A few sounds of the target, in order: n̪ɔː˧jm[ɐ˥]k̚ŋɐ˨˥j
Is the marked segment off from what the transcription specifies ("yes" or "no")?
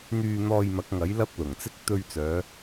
yes